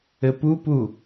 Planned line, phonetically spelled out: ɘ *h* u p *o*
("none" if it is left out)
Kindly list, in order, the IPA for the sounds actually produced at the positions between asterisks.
p, u

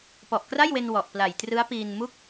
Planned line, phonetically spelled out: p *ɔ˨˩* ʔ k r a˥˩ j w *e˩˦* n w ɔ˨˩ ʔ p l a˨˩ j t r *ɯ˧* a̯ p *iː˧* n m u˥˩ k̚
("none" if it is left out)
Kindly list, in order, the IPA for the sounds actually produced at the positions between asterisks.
ɔ˨˩, e˧, ɯ˦˥, iː˧

